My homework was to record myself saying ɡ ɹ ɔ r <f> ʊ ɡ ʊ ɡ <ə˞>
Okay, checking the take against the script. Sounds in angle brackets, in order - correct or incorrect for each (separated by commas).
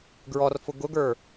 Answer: correct, correct